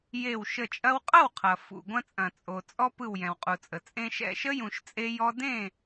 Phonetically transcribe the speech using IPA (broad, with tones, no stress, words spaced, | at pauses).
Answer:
je˧˩wʃə˧˩ t͡ʃʼɐ˧wqʼɐ˥˩wqʰɐ˩ fṵ˩ ɡʷɐ̃˧t͡sʼɐ̃˩t͡sʼo˩ t͡sʼɔ˧ pɯ˧˩wjɛ̃˩wqʼu˩t͡sʼə˩ t͡sʼẽ˧ʃɛ̰˧˩ʃə˦˥ jũ˨˩˦ʃt͡sʼe˧jɔ˧ dẽ˥˩